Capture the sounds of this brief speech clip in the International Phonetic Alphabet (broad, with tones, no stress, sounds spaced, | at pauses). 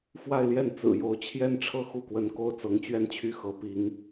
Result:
f w a˥˧ ɪ̯ l j ɛ˥˩ n t͡s ɹ̩˨˩ j o˧˥ ʊ̯ t͡ɕʰ j ɛ˥ n ʈ͡ʂʰ ɤ˥˧ x u˥˩ k w ə˧˥ n k o˥ ʊ̯ t͡s ɤ˧˥ ŋ t͡ɕ ɥ ɛ˥˧ n t͡ɕʰ y˥˩ x ɤ˧˥ p i˧˥ ŋ